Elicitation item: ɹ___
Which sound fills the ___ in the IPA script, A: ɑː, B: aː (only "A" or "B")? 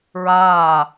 B